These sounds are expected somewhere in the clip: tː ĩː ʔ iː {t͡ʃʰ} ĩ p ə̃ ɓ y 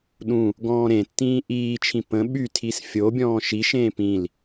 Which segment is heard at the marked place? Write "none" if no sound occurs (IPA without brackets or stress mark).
t͡ʃʰ